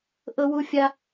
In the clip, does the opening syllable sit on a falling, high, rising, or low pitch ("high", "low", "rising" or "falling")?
high